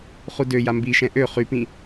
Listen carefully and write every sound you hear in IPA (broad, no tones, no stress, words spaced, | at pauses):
χudøja mbiʃɛ̃ ʔø χypĩ